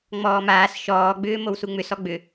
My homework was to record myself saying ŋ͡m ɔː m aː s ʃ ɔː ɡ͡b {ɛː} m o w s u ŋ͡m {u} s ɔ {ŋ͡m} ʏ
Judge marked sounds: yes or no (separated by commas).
no, no, no